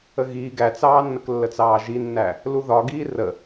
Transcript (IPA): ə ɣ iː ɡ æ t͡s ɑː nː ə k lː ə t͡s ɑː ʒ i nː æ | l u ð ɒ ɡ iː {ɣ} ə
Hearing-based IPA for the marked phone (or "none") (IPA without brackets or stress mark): r